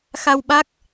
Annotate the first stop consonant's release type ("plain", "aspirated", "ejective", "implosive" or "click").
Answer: implosive